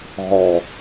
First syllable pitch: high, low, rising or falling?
low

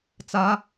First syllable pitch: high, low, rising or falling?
rising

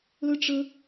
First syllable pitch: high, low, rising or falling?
high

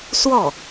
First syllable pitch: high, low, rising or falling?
falling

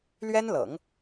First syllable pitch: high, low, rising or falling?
high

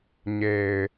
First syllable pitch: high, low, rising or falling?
low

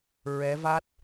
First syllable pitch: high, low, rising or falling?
rising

